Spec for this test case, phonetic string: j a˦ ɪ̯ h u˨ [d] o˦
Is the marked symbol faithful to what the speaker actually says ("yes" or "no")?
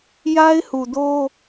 yes